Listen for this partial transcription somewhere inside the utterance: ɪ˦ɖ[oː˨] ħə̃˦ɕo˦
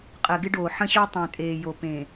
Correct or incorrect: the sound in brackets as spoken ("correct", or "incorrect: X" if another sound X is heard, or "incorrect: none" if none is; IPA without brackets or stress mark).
correct